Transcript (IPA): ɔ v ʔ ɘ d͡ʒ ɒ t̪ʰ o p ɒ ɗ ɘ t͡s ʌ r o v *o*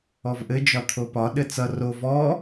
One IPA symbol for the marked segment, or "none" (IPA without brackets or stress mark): ɔ